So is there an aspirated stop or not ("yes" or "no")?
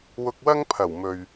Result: yes